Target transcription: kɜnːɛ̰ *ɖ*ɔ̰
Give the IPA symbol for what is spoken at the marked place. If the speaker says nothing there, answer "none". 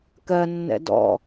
d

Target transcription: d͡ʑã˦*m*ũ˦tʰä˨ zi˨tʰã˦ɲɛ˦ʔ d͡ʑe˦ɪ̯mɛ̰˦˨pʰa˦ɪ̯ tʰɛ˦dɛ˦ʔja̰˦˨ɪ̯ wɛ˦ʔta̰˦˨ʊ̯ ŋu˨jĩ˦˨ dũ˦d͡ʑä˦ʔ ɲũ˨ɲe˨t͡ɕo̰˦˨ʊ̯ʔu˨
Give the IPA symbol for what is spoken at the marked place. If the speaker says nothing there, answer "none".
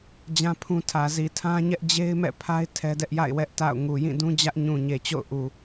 pʰ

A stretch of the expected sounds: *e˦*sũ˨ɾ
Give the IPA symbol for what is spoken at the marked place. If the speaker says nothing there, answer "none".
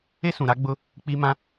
e˦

